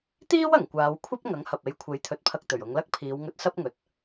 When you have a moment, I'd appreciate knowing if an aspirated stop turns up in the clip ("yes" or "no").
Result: yes